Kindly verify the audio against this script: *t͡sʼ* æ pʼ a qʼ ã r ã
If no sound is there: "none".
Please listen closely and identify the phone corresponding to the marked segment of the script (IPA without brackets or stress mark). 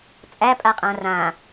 t͡sʼ